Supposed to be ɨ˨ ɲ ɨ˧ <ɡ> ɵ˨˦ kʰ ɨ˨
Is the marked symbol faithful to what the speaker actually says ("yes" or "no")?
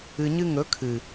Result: no